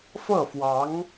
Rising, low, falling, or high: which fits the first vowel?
falling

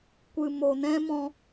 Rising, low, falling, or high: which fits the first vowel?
low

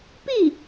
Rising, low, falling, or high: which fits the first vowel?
falling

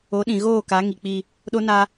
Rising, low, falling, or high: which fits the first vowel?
rising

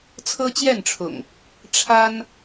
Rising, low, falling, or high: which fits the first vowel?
high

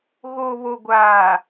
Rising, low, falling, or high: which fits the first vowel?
low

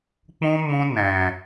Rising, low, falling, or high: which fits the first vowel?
high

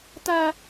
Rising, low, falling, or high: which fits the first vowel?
high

